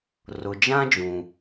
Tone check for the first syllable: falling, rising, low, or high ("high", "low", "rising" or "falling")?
low